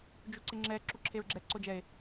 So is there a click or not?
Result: yes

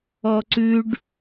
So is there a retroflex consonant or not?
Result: yes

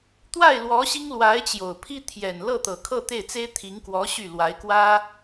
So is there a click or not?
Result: no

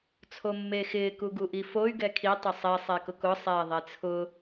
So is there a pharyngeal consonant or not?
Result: no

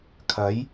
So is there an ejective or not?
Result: no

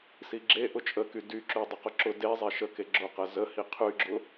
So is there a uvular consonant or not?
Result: yes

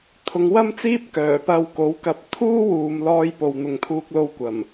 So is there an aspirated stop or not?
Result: yes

